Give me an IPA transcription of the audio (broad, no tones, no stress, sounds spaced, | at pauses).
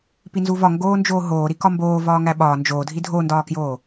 p i n z u v ɒ ŋ ɡ oː n d͡ʒ oː ɦ oː ɾ i k ɒ m b oː v ɒː ŋ æ ɓ ɒː n d͡ʒ oː dʱ i dʱ o n d ɒː k j oː